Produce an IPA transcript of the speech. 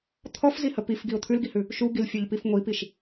t̪ʰ ɔ f z i h ə p i f ɡ i ʊ̯ t̪ʰ ʉ l ɡ i h ʉ | ʃ u ɡ i l fʲ ɔ ʎ p i f ŋʷ i p i ʃ

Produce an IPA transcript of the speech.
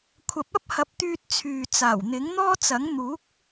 kʷʰ ɐ˨˥ p̚ ɐ˥ p̚ h ɐ˨˥ p̚ t̪ yː˧ t̚ t͡sʰ yː˨ t͡s aː˨˩ w n̪ ɪ˨˥ ŋ n̪ ɔː˥ t͡s ɐ˨˥ ŋ n̪ uː˨˥ k̚

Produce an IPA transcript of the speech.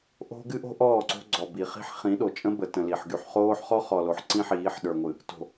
ʔ o̤˦ ɡ ɨ˦ ʔ o̤˦ ʔ ɔː˦˨ ǀ o̤˦ ɡ͡ǀ ɔ˨ b i˨ χ i̤˦ ħ χ ĩ˨˦ ɗ o˨ t͡ʃʼ ə̃˦ b ə˨ t ə̃˨ l i˨ ħ ɡ y˨ ħ χ oː˦ ħ χ ɔ˦ χ ɔ˨ l o˨ ħ ǀ ĩ˦ ħ iː˨˦ ħ ɗ ə˞˨ ŋʷ ɨ˨ | t o̤˨

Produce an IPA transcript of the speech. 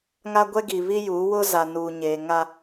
ŋ a˦ ɡʷ ɛ˦ ɡ i˨ β i˦ j u˨˦ w ʊ˦ z a˨ n uː˨ ɲ eː˨ ŋ a˦

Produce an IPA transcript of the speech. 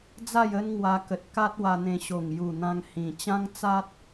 d͡z a˥˧ j ə˦ n ŋ w a˧ k ə˨ t̚ k a˦ t̚ w a˧ n̪ ẽ˧ ɕ o˨˩ ŋ j u˨˩ n̪ ã˧ ŋ h ĩ˨˩ t͡ɕ ã˦ ŋ t͡s a˦ t̚

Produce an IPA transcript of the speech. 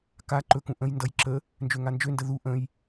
k a ǃ ɵ k ũ ʔ ə̃ j n d ʌ j ǁ ə | n d͡ʒ ø ŋ a n d͡ʒ ø n d ə ð u ʔ ə̃ j

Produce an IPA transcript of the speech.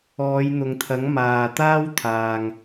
ɔː˨˧ j n̪ ʊ˨ ŋ t̪ʰ ɐ˨˥ ŋ m aː˨ t̪ aː˥ w t̪ʰ aː˨ ŋ

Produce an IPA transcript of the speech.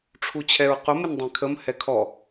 ʈ͡ʂʰ u t͡ɕʰ ɛ ɹ q ʊ m ɪ n dˤ ɛ̃ kʰ ə m h ɛ kʰ ɔ

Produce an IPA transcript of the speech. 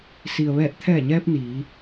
s i˩ ə̯ ʋ ɛː˧˩ t̚ t̪ʰ ɛː˧˩ ɲ ɛː˧ p̚ n iː˩˧

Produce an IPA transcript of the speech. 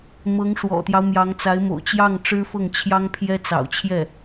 m ɤ˧˥ ŋ ʂ w ɔ̰˨˩ t̪ j ɑ˦ ʊ̯ m j ɑ˧˥ ŋ t͡s a˧˥ ɪ̯ m o̰˨˩ ʊ̯ t͡ɕ j ɑ˥˩ ŋ ʈ͡ʂ ɻ̩˥ f ɤ˥˩ ŋ t͡ɕʰ j ɑ˥ ŋ pʰ j ɛ˥ t͡s ɑ̰˨˩ ʊ̯ t͡ɕʰ j ɛ˥˩

